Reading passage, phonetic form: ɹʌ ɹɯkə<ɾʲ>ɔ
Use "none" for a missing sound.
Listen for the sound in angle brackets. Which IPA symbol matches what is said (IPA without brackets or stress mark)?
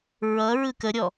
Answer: ɾʲ